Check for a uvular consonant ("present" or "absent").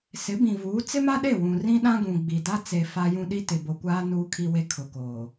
absent